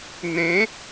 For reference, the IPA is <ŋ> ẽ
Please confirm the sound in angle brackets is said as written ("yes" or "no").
no